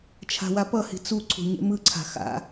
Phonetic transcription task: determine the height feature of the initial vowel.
low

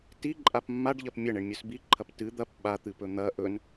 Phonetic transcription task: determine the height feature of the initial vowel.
high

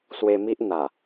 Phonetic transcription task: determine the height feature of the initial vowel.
mid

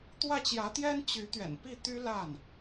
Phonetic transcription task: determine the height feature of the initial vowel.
low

